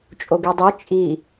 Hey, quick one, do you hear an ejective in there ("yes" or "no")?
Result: yes